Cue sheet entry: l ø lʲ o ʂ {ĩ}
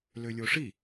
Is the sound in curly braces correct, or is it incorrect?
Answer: incorrect